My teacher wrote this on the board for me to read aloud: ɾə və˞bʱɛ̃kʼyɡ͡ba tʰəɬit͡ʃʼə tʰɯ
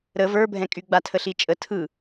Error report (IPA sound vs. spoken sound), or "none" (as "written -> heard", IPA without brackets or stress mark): none